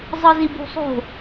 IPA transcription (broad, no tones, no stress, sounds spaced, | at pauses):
zˤ ɯ z i b ṳ sˤ o̤